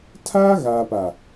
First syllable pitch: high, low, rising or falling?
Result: high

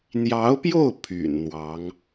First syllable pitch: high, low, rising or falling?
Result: rising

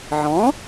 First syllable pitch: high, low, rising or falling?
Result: rising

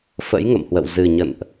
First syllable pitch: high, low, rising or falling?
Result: rising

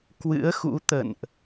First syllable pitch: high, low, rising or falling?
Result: rising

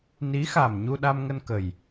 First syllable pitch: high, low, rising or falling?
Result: rising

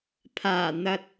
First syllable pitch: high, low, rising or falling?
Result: low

